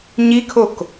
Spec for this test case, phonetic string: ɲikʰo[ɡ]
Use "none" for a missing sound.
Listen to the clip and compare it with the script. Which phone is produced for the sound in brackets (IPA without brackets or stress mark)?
k